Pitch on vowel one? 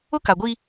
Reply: high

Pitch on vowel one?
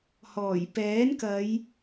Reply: low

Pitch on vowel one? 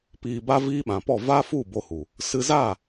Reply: low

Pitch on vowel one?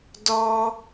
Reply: high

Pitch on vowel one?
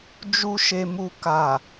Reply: high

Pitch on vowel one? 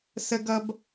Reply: high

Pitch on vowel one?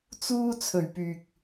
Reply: high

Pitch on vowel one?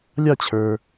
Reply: falling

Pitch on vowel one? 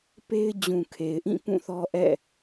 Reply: high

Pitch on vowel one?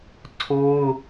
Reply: high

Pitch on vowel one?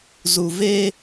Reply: low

